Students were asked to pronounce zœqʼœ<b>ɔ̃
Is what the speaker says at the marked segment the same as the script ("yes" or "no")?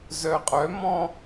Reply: no